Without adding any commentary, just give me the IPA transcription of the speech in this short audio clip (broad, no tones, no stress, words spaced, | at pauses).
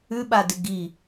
ʉɓa dɨɡi